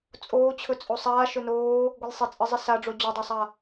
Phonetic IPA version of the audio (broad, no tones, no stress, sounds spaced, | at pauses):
t͡sʼ oː t͡ɕʰ ɵ t͡sʼ o sˤ aː ʃ ɵ n oː | ɡʷ ɘ lʲ sˤ ɪ t͡sʼ ɘ zˤ ɪ s a ɖ͡ʐ o d͡ʑ o dˤ a sˤ a